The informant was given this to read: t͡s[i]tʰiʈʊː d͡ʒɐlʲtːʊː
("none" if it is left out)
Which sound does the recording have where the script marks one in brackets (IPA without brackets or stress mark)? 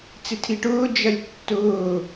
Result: ɪ